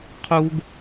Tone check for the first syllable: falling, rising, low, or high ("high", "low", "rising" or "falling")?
high